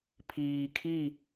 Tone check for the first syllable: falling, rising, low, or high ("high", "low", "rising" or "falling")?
low